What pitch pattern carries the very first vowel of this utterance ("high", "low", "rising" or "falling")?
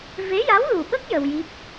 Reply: rising